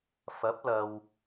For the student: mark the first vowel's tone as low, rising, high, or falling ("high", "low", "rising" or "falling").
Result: rising